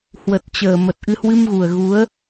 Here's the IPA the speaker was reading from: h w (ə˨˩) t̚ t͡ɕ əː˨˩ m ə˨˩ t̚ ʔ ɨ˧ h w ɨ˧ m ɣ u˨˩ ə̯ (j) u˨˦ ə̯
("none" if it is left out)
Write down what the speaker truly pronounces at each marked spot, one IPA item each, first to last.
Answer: ə˨˩, ɣ

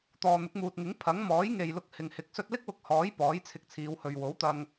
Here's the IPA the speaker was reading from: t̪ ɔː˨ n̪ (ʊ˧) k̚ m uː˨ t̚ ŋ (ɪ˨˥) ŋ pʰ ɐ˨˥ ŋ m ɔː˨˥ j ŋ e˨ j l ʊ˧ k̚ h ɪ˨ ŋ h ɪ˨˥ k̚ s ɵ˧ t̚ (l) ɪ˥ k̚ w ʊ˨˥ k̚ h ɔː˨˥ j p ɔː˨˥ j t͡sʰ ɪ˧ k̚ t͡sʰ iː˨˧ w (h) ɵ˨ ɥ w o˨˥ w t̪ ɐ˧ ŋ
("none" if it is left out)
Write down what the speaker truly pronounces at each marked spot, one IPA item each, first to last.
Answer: ʊ˨˥, ɪ˨˥, l, h

